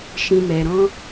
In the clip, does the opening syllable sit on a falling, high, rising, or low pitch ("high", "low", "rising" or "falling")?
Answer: low